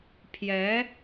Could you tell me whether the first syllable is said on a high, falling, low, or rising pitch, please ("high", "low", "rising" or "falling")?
rising